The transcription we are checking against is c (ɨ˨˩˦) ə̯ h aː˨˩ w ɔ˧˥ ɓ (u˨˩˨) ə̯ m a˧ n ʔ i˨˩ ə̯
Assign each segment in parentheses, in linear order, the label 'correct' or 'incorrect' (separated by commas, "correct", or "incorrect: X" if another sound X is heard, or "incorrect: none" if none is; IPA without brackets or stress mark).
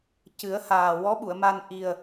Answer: correct, correct